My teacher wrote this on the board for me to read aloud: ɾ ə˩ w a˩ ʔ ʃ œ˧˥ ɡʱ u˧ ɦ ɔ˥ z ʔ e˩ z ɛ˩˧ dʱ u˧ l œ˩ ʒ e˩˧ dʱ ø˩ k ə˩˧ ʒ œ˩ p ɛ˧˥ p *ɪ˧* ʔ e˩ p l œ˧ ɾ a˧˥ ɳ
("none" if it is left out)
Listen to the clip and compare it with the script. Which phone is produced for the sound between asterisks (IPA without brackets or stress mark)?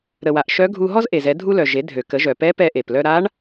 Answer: ɛ˧